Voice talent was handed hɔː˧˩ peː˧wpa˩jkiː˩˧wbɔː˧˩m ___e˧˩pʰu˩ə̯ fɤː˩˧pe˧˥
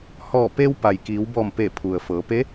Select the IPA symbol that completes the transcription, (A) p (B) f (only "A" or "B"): A